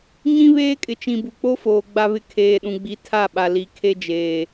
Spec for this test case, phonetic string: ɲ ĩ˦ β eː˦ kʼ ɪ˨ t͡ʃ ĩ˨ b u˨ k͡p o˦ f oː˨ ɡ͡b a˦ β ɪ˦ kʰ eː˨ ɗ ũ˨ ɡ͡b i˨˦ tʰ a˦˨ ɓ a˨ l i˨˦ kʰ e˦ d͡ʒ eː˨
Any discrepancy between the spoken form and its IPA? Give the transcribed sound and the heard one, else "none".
none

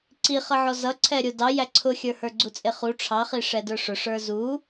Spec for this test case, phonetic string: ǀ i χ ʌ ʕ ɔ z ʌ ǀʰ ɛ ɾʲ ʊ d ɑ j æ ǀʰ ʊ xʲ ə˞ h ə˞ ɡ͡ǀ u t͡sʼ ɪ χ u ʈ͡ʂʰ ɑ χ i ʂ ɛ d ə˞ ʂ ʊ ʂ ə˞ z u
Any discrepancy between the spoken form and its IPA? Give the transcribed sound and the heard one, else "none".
none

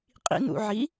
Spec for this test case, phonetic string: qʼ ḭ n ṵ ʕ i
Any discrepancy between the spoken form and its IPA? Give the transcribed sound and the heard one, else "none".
none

